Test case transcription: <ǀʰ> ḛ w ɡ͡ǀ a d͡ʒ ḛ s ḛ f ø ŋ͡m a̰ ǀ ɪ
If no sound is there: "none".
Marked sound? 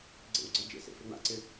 ɡ͡ǀ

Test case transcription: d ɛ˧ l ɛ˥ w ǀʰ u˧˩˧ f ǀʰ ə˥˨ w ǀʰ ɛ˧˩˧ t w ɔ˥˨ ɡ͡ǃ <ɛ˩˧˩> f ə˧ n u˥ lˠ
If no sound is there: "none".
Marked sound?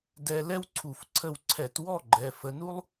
ɛ˩˧˩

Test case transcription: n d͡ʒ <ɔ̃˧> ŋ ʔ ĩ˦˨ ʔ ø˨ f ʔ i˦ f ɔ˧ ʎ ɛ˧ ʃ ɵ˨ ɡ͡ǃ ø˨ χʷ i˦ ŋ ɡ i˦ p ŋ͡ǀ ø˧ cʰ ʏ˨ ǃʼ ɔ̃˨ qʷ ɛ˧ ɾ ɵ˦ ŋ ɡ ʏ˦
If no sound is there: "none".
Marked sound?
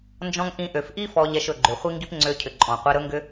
ɔ̃˦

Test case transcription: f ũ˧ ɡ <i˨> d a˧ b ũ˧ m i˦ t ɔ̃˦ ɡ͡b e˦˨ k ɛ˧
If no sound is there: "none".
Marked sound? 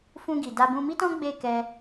i˨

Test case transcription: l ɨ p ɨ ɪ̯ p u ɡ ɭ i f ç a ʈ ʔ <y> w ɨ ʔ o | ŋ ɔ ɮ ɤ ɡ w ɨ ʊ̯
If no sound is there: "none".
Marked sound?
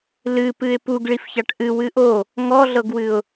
ɨ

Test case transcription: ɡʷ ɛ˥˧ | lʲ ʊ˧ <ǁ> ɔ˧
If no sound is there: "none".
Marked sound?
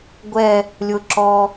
ǁ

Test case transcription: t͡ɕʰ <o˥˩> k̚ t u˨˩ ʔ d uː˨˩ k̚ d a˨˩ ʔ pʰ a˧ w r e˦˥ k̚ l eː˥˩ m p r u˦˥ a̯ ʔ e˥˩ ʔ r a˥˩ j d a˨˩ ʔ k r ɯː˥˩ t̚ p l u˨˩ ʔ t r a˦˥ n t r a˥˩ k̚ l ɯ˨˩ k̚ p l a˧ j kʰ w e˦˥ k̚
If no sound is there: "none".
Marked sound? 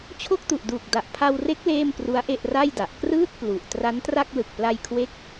o˥˩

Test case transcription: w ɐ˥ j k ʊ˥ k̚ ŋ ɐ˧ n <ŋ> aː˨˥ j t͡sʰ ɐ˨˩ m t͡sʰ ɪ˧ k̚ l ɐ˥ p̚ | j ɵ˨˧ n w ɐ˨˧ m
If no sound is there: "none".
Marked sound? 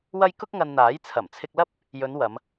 n̪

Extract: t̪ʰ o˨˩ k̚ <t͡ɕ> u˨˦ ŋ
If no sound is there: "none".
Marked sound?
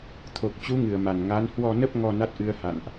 t͡ɕ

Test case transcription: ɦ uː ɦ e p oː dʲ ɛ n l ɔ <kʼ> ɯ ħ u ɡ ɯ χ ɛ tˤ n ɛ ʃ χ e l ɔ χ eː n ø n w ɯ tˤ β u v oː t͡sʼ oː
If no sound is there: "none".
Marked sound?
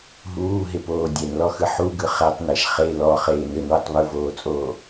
x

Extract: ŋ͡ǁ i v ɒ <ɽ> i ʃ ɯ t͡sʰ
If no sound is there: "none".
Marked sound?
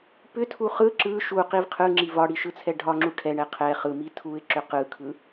ɽ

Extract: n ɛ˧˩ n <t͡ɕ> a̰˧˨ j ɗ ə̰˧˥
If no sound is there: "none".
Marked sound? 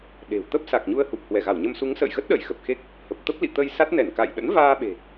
k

